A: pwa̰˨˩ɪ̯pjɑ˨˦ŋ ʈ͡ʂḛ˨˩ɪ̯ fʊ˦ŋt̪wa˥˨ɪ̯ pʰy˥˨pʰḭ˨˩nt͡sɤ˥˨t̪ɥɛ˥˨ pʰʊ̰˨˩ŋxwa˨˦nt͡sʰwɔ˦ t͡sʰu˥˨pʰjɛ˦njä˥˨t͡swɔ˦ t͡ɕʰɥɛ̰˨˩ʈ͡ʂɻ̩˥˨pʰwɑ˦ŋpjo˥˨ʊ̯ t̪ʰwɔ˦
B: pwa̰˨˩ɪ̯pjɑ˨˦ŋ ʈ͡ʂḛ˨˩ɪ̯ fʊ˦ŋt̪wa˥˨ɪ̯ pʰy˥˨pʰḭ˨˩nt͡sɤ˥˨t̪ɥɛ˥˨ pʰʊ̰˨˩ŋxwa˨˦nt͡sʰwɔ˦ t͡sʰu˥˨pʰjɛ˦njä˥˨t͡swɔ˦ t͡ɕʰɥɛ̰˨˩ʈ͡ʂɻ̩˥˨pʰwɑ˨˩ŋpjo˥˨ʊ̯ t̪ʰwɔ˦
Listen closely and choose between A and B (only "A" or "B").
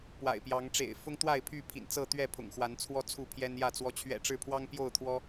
A